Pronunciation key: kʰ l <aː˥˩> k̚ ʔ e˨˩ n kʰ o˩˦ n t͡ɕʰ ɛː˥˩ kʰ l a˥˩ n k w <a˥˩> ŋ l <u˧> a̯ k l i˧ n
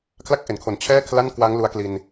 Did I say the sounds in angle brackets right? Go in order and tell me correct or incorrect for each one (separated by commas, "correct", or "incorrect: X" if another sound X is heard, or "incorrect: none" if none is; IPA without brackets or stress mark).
incorrect: a˥˩, incorrect: a˦˥, correct